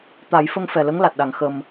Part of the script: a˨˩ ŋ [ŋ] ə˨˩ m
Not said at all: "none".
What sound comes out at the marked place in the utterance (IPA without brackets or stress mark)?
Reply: x